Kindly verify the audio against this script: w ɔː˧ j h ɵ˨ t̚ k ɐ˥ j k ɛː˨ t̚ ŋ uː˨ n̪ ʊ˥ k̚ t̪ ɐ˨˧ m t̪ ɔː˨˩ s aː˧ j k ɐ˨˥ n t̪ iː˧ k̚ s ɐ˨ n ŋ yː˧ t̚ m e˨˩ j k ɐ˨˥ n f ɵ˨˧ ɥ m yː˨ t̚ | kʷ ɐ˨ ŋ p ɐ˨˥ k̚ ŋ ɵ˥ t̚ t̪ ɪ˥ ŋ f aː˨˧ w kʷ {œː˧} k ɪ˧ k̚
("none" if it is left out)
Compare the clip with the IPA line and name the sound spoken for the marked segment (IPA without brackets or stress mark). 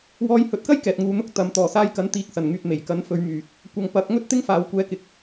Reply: ɛː˧